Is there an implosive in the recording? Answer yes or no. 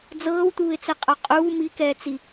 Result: no